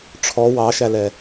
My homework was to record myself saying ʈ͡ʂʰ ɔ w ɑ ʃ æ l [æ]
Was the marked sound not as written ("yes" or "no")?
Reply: yes